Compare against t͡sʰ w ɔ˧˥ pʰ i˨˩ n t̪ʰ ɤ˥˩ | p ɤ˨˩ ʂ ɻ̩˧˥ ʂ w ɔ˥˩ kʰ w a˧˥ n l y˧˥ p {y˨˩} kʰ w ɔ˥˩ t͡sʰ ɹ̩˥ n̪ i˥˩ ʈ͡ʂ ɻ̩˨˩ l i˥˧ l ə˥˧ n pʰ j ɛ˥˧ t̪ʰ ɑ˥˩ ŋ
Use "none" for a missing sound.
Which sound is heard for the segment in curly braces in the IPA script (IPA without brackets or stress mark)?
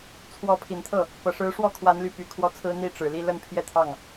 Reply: y˨˩